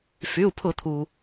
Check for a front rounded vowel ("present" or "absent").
present